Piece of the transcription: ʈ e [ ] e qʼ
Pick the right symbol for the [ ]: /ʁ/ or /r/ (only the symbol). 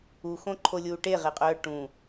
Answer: ʁ